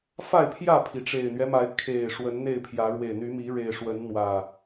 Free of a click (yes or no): yes